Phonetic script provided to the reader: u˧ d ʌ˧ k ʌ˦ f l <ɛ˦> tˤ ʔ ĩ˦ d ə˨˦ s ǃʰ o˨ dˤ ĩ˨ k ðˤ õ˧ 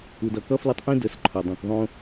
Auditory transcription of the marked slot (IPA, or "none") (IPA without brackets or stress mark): ə˦